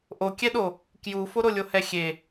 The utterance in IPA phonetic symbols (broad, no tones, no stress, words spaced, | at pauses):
ʔokʲɛɗo | kjufoɾo lʲohɛxʲe